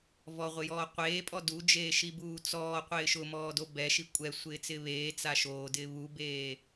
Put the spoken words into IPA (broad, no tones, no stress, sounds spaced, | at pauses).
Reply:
v ɔ ʁʷ ɪ j ɔː qʷ eː pʼ ɔ d u d͡ʒ eː ʃ i b uː t͡s ɔː qʷ ɪː ʃ ʊ m ɔː d o b ɛ ʃ i kʷʼ ɛ sʷ ɪː t͡s ɪː β eː t͡s a ʃ oː d ɪː β u b eː